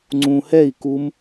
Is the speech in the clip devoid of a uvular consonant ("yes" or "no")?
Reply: yes